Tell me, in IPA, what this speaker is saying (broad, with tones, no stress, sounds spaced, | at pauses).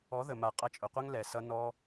ɔ˨˦ ð ə˨ m a˨ qʼ ʌ˧ t͡ʃʼ ʊ˨ qʷ ʌ˦ ŋ l ɛ˨ s ʌ˧ n ɔ˧